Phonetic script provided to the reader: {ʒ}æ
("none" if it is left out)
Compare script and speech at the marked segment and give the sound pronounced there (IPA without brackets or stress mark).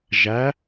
ʒ